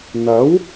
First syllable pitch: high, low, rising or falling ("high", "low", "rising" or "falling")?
rising